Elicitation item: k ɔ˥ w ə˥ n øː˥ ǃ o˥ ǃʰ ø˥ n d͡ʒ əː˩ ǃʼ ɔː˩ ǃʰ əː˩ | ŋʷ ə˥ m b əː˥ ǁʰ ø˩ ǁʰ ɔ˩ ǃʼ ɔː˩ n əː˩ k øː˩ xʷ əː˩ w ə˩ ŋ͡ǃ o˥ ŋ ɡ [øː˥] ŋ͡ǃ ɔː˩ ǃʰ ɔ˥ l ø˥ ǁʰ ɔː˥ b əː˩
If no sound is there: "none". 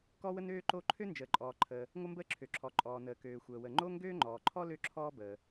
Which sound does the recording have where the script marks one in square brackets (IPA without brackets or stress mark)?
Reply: øː˥